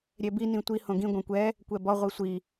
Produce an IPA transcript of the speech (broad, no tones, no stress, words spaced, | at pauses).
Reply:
ɾʲɛbi nĩtʷi hõɡĩ ɡʷɛ̃kʷɛ | kʷɛbɔ ʁʷisʷi